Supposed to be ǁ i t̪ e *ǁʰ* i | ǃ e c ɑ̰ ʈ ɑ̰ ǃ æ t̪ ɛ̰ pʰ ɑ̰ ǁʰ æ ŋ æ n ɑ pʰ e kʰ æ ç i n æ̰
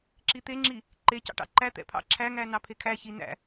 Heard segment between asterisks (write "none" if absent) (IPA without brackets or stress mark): ŋ͡ǁ